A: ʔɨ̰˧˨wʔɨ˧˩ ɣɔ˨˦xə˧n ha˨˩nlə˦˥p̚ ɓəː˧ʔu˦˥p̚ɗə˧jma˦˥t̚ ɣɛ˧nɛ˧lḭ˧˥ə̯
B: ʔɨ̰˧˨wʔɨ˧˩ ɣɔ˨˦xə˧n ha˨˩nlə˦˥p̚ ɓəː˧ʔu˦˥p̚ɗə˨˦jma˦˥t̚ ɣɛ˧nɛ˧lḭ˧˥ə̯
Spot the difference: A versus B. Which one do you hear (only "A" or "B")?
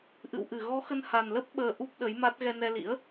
B